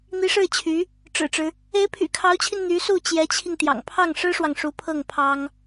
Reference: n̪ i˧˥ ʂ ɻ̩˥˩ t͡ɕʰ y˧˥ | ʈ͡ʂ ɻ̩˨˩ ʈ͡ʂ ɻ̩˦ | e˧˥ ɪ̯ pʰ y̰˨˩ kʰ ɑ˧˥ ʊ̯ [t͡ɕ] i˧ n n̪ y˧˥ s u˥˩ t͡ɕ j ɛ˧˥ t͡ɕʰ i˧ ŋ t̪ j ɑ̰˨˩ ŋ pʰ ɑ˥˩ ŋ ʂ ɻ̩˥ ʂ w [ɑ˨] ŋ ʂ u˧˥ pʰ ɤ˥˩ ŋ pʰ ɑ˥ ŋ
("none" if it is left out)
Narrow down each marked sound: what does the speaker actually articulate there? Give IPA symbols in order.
t͡ɕʰ, ɑ˨

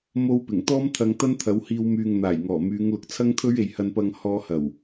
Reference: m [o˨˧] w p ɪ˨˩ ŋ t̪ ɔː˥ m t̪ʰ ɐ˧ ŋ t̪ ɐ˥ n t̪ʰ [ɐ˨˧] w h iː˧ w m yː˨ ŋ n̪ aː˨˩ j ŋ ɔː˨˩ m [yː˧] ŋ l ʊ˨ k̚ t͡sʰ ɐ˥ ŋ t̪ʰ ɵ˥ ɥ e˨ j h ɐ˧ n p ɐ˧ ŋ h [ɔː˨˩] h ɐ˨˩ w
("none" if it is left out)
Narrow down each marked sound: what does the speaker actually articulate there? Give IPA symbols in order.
o˥, ɐ˨˧, yː˨˧, ɔː˧

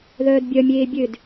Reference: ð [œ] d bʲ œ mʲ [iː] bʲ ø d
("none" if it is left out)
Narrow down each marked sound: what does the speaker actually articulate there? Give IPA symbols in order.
œː, eː

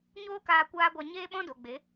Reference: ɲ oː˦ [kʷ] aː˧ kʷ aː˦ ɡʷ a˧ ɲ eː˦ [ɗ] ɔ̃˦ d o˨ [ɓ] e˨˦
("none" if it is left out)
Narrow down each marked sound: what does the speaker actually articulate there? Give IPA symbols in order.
k, ɓ, ɡ͡b

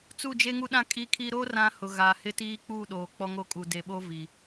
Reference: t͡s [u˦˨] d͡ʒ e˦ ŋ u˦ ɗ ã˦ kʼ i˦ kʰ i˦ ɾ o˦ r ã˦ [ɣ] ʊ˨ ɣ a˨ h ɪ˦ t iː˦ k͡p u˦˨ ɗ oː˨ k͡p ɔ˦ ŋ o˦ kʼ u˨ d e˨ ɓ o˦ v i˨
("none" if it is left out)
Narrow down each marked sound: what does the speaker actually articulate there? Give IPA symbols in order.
u˦˨, h

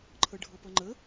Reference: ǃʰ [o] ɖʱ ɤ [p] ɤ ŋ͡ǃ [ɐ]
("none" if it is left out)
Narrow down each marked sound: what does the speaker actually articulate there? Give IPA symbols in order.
ɤ, p, ə

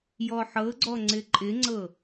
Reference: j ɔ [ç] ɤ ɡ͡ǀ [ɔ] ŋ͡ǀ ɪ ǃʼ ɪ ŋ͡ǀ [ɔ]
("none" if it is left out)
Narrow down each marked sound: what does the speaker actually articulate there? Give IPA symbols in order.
ħ, ɔ, ɤ

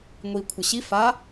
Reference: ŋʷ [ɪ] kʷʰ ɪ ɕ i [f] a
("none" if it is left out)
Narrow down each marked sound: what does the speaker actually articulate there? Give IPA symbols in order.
i, f

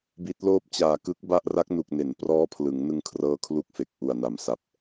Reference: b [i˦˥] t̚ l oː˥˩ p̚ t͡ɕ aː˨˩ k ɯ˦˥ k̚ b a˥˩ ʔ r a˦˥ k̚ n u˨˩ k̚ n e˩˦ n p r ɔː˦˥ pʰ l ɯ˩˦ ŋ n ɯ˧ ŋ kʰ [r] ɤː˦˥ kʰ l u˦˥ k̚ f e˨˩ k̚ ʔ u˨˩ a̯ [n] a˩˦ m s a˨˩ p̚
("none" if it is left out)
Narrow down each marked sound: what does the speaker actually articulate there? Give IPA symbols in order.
i˦˥, r, n

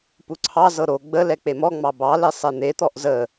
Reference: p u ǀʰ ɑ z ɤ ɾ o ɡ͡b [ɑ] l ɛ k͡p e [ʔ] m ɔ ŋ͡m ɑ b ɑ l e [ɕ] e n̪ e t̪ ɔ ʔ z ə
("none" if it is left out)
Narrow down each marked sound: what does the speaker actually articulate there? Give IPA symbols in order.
ə, none, sˤ

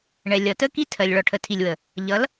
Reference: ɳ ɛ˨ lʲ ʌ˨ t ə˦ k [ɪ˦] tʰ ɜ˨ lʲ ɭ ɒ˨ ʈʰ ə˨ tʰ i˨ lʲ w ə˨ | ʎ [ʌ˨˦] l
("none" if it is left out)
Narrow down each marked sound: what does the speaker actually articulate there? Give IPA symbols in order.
i˦, ʌ˨˦

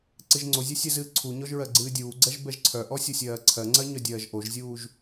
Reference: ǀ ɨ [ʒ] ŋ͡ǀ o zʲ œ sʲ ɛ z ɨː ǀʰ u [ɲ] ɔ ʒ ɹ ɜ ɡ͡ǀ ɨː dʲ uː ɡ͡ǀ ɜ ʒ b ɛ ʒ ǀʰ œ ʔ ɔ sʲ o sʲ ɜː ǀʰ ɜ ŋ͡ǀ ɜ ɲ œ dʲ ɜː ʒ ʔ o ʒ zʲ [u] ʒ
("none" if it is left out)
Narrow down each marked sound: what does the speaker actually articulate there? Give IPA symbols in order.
ʒ, ɲ, uː

